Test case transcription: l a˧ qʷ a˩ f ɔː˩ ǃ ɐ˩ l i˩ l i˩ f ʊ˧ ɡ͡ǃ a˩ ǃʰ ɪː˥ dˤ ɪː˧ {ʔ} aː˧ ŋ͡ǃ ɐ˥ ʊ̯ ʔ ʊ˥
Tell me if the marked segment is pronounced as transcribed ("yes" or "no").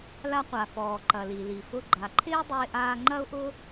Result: yes